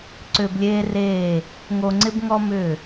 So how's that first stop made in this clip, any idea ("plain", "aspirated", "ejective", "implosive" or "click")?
click